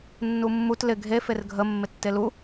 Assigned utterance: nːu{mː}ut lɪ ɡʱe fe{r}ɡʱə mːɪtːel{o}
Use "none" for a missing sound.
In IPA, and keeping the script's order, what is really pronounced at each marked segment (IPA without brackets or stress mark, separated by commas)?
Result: mː, r, u